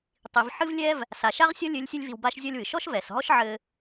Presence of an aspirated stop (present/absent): absent